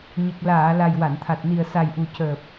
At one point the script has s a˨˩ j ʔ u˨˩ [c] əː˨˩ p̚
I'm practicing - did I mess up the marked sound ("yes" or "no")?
no